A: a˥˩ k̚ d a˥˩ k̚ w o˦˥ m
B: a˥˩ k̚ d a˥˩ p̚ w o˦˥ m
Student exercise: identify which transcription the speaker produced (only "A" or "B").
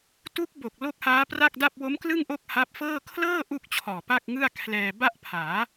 B